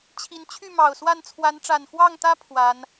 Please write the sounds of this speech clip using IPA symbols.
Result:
t͡ɕʰ i˨˦ n t͡ɕʰ y˥˨ m ɑ˨˩ ʊ̯ s w a˥˨ n t͡sʰ w a˨˦ n ʈ͡ʂ a˨˩ n x w ɑ˥˨ ŋ t̪ ä˦ pʰ w a˨˦ n

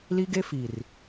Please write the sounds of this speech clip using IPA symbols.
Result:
l i˦ ɡ e˦ f i˨ r

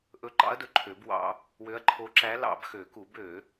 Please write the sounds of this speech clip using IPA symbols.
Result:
ʔ ɵ˧˥ ǃ ɑ̰˧˥ ɐ̯ d ɵ˨ ǃʰ ø˨˩˦ b w ɑ̰˧˥ | w ø˧˥ ɐ̯ ǃʰ o˧˥ ǁ æ˧˥ l ɑ̰˨˩˦ b x ø˨˩˦ k u˨˩˦ b ø˨˩˦

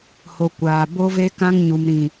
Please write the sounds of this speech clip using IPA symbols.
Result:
h o˨ kʷ aː˨ b o˦ v e˦ k ã˦ ŋ ɲ u˨ m ɾ ĩ˨

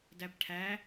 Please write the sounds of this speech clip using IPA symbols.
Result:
d æ p ʈʰ æ

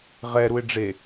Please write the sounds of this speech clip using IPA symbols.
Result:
ʁ ɛ ɾ u ɪ̯ ɖ͡ʐ e

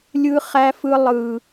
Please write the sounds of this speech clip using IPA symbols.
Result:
lʲ ɯ˦ χ æ˦ f ɯ˦ lˠ ɯ˦

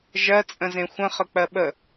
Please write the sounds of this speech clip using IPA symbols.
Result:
ʒ ɜ t͡sʼ ə̃ z ẽ xʷ ə̃ χ ə k͡p ɜ ɓ ə

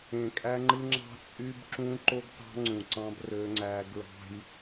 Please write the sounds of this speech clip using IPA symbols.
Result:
ẽ˨ kʼ æ˦ ŋ͡ǃ ɯ˦ ŋ͡ǁ ɑ̤˦ t͡sʼ y˦ b ǁ ũ˦ ǃ o˦ ɡ t ɑ̤˦ ŋ͡ǀ ũ˨ ǀ ɑ̃˦ b r ø˦ ŋ͡ǀ æ˦ ɡ ɹ ɑ̤˦ j

